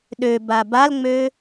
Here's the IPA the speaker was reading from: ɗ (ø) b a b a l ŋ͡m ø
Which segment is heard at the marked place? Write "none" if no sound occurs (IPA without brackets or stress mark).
ø